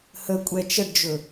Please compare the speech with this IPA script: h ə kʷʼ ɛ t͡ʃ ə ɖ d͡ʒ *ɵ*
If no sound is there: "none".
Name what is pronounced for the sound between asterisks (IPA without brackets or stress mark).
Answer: ɵ